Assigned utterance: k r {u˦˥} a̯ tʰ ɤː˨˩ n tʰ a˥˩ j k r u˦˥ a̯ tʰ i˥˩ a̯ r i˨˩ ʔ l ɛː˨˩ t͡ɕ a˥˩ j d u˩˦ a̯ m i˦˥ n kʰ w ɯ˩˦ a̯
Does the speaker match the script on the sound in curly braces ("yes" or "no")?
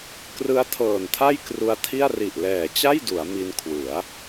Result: no